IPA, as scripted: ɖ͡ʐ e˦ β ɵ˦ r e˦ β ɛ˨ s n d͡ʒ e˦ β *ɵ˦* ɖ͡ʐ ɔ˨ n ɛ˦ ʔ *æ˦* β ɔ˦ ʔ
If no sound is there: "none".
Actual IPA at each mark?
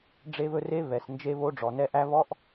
o˦, æ˦

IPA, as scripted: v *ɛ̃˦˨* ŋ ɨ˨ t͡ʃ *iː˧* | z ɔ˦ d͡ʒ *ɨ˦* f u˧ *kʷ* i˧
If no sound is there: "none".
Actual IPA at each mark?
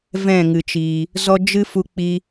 ɛ̃˦˨, iː˨, ɨ˦, k͡p

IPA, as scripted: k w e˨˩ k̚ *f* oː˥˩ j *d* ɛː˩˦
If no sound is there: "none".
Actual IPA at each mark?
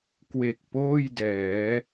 p, d

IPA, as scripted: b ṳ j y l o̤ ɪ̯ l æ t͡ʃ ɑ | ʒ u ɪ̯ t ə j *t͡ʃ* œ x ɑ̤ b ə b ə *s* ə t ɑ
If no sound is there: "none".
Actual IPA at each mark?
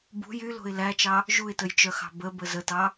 t͡ʃ, z

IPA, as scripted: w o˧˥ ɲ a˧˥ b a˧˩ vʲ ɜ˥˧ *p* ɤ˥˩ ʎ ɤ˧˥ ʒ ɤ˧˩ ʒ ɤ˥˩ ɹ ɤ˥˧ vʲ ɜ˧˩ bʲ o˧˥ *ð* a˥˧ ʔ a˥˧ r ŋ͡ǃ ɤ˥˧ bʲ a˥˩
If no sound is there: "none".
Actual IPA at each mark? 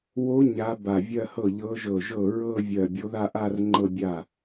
h, ð

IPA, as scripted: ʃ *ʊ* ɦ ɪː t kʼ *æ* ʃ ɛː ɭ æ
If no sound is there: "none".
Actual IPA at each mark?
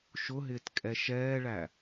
ʊ, ɛ

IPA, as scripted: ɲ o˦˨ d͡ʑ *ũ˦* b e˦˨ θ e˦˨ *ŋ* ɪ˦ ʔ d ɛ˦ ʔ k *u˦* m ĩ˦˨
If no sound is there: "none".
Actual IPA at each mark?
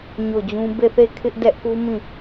ũ˦, kʰ, u˦

